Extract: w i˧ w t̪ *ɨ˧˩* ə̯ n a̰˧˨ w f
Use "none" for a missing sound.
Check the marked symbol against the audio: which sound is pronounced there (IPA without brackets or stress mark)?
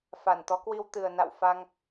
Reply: ɨ˨˩